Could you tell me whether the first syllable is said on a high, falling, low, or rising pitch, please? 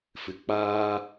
low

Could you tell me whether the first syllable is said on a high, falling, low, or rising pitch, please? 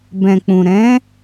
low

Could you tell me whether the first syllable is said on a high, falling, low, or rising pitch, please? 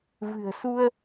low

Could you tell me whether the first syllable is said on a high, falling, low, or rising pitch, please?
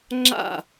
falling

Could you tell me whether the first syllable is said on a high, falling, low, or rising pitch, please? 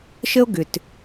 high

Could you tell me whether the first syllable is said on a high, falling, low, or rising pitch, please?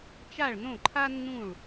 falling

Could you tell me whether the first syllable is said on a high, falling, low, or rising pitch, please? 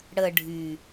low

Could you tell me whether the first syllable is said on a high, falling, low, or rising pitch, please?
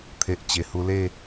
low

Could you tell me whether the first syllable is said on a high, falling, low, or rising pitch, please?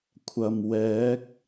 low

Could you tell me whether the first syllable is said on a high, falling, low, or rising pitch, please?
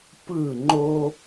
falling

